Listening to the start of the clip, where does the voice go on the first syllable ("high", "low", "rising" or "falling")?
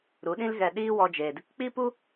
rising